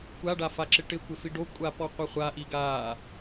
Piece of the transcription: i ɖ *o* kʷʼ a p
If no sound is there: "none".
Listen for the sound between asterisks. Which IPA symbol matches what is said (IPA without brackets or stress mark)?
o